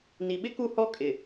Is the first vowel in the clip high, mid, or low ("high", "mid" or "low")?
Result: high